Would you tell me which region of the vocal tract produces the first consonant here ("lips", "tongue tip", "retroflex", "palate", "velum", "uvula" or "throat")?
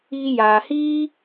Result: palate